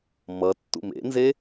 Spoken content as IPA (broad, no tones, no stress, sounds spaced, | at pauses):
m ʌ tː ṵ m ḛ n z e